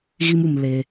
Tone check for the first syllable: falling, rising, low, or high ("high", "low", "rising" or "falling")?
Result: high